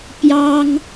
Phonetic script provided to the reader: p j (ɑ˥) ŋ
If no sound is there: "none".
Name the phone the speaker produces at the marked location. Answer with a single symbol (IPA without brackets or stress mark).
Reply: ɑ˥